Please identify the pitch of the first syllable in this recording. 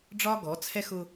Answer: high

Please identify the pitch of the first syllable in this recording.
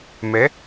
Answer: rising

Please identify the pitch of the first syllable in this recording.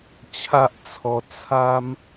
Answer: high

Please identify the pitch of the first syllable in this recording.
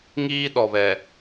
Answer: high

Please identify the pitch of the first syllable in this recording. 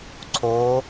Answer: rising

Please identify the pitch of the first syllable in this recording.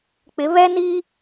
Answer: rising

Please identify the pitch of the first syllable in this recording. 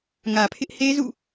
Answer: low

